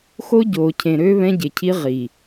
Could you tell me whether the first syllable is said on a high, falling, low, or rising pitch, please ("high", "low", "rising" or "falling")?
high